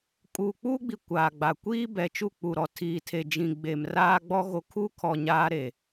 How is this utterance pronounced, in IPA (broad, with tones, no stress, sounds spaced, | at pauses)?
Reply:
kʼ uː˨ k͡p uː˦ ɡ͡b i˨ kʷ aː˨ ɡ͡b a˨ kʷ iː˦ b ɛ˨ t͡ʃ u˦˨ k͡p u˨ ɾ ɔ˨ tʰ iː˨ tʰ e˨ d͡ʒ ĩ˨ ɡ͡b e˨ m r aː˦ ɡ͡b ɔ˦ ɣ o˨ kʰ u˦ kʰ ɔ˨ ɲ aː˦ ɾ e˨